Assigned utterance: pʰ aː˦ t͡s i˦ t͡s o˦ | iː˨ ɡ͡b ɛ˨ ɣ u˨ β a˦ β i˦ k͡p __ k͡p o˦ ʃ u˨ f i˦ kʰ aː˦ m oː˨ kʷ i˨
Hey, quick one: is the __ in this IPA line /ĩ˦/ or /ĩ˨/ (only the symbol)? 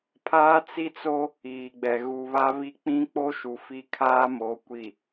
ĩ˦